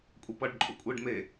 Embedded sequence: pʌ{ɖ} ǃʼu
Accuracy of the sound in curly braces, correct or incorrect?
correct